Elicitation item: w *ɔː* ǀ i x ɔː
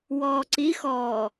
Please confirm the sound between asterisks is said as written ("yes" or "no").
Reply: yes